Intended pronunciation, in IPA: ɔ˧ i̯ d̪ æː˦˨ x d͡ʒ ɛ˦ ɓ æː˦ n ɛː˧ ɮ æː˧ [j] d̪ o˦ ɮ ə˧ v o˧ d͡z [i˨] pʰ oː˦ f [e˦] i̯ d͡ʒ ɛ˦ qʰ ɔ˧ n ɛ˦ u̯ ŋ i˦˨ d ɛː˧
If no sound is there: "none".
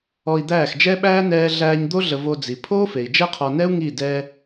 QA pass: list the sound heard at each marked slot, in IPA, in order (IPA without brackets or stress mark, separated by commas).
ɲ, i˨, e˨